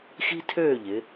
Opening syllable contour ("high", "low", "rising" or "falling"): high